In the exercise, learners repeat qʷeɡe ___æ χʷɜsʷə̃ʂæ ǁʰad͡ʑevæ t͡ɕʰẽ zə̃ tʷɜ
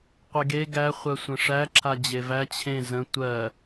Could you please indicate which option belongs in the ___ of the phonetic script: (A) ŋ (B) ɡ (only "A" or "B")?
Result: B